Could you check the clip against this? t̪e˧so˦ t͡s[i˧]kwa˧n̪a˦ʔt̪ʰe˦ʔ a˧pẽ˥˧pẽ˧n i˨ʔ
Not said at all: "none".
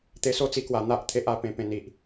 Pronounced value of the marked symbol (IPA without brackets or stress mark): i˧